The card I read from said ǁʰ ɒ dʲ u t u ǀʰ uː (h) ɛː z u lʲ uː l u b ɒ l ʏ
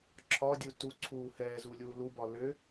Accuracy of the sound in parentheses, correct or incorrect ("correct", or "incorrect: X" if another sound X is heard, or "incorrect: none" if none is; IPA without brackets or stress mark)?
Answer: correct